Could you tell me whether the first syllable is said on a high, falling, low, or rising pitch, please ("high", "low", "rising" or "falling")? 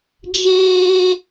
high